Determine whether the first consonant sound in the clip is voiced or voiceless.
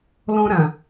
voiced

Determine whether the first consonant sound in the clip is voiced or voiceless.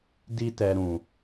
voiced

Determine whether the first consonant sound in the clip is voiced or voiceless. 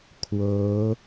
voiceless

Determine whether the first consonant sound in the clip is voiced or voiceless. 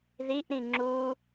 voiced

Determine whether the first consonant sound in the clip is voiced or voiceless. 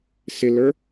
voiceless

